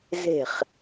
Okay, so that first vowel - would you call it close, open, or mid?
mid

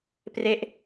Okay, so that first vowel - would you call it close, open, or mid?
mid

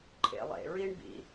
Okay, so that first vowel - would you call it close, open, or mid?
mid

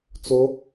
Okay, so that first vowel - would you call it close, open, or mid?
mid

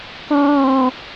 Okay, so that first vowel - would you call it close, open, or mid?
open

